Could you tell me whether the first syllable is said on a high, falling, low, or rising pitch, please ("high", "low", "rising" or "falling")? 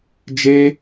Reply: high